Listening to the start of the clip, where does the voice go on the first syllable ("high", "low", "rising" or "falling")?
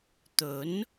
rising